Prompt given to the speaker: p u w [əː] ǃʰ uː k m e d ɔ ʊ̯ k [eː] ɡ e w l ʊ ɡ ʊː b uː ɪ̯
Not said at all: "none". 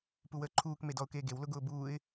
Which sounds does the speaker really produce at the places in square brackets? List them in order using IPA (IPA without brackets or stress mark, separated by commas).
əː, eː